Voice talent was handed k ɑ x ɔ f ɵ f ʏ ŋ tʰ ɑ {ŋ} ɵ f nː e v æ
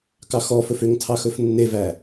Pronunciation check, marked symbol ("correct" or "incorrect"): incorrect